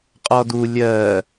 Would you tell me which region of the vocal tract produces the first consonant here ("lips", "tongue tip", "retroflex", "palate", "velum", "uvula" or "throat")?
uvula